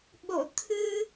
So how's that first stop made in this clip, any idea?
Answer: implosive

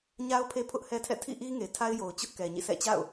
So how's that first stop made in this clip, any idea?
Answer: aspirated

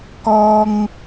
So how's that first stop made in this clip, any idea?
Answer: plain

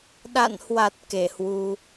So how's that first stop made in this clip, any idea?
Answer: implosive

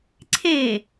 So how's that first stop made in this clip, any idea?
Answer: click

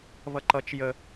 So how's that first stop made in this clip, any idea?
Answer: click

